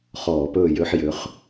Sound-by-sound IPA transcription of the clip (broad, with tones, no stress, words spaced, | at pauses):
χɔː˧˩˧pɵː˥˨jø˦ħjø˨˥χ